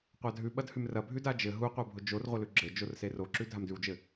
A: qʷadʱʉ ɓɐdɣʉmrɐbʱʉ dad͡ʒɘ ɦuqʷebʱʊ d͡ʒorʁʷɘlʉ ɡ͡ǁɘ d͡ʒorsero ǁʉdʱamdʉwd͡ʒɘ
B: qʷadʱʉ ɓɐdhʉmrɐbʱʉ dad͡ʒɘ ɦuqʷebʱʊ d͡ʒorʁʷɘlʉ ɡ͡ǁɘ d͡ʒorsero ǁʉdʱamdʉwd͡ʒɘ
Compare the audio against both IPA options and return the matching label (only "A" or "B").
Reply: B